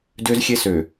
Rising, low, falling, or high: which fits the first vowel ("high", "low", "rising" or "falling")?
high